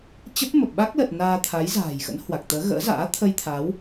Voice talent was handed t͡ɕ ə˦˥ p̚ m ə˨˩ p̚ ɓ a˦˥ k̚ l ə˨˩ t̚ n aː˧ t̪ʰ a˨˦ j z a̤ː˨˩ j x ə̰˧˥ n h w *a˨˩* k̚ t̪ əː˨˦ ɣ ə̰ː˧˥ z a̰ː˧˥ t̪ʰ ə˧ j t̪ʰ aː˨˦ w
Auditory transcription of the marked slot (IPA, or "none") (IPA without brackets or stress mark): a˨˩